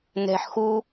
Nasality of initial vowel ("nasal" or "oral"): oral